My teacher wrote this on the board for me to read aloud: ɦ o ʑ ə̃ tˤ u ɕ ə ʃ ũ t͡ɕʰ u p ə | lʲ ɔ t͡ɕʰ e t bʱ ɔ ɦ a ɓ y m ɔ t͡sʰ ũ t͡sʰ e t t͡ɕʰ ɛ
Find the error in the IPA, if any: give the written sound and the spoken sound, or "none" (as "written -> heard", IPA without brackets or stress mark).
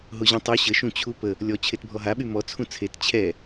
none